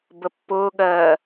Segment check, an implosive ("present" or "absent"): present